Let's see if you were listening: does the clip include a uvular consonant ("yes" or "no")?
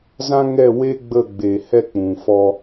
no